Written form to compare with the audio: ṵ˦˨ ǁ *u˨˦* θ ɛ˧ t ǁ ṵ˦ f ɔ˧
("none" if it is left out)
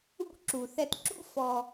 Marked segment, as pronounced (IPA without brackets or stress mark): u˨